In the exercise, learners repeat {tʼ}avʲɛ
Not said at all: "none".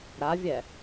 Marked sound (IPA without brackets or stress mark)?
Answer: ɾ